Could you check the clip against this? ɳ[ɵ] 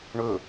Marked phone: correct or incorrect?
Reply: correct